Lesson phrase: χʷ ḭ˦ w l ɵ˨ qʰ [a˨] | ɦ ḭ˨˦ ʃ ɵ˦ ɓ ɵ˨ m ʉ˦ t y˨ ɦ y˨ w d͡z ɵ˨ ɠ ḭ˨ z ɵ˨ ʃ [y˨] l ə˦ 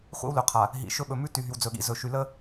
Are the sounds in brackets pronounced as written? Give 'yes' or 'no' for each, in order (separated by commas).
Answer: yes, yes